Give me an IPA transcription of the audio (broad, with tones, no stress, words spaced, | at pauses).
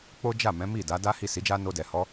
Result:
k͡po˦d͡ʒa˦˨ mɛ̃˨˦mi˦˨da˨˦da˦ hi˦˨ si˨˦d͡ʒa˦no˧ dɛ˨hɔ˨˦